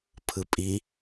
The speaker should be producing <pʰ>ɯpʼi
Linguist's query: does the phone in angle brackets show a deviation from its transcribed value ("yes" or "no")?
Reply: no